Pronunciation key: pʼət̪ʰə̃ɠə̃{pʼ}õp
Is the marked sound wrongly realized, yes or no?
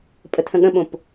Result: yes